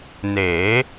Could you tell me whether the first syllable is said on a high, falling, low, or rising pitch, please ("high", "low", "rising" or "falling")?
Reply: rising